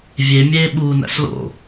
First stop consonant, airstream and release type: implosive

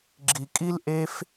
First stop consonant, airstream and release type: click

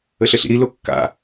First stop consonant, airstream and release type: plain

